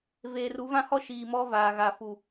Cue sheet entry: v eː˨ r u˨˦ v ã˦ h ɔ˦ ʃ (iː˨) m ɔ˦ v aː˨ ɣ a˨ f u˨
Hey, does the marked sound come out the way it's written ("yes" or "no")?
yes